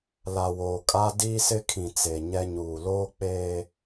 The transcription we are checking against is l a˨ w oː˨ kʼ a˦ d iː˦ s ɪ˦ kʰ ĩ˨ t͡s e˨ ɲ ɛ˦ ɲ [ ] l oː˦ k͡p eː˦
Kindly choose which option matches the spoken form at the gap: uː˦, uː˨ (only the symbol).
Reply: uː˨